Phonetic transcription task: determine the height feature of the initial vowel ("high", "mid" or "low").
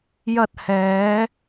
low